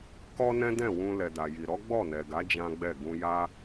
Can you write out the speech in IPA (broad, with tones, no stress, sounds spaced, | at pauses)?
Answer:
k ɔ˦ n ɛ̃˦ d ɛ̃˦˨ w ũ˧ l ɛ˨ d a˨ j i˨ ɾ ɔ˨˦ ɡ͡b ɔ˦˨ n ɛ˨ ɡ a˨˦ d͡ʒ ã˦ ɡ͡b ɛ˦˨ ɡ ũ˧ j a˦